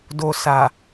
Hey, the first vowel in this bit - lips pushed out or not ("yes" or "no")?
yes